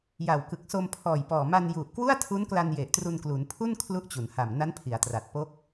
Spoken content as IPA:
j a˨˩ w k ɯ˨˩ k̚ s o˧ m pʰ ɔː˨˩ j p ɔː˨˩ m a˧ n j u˨˩ ʔ k w u˥˩ a̯ tʰ u˦˥ n k l a˧ n j e˨˩ ʔ t r u˧ n k l u˩˦ n pʰ u˥˩ n kʰ l u˦˥ ʔ t͡ɕ u˩˦ n h a˨˩ m n a˦˥ n pʰ i˩˦ a̯ t r a˨˩ t̚ p o˦˥ k̚

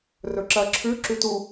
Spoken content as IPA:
r ɵ ǁ ɐ ǁʰ ʉ ǁ ʉ t u

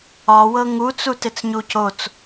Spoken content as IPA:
ɒ w ɤ ŋ u t͡s u t ɪ t͡s ɲ u c o t͡s

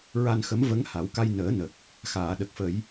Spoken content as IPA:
ɹ a˧ n x ə˧˥ m v ə˧˥ ŋ h a˨˩˦ w k a˧ j n əː˨˩˦ n ə˨˩ k̚ | x aː˨˩˨ ɗ ə˨˩ k̚ f ə˨˩˦ j

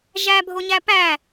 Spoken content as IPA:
ʒ æ bʱ o ɲ æ p æ

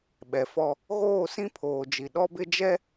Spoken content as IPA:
ɓ ɛ˨ f ɔ˦ | ɣ oː˦˨ s ĩ˦ pʰ oː˨ d͡ʒ i˨ ɗ ɔ˦ b ɪ˦ d͡ʒ ɛ˦

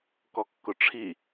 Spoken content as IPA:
k ɔ kː ʊ ʈ͡ʂʰ i

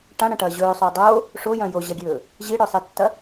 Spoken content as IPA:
ʈ ã ɽ ɐ̃ ʈ ɐː ʑ ɵː sˤ o dˤ oː | ʂ o j ɐ̃ j o ʑ ɐ ɡʲ ɵː | ʑ i ɽ ɵ sˤ i tː ɐ

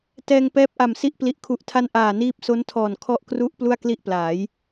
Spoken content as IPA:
t ɛː˧ ŋ p ɛː˦˥ p̚ ʔ a˨˩ m s i˦˥ ʔ p l i˨˩ ʔ kʰ u˨˩ ʔ tʰ a˦˥ n ʔ aː˨˩ n iː˦˥ p̚ s o˦˥ n tʰ ɔː˨˩ n kʰ ɔ˦˥ ʔ k r u˦˥ ʔ p l u˥˩ a̯ k l i˥˩ ʔ p l aː˩˦ j

